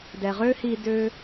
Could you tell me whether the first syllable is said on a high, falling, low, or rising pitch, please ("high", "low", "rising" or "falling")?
low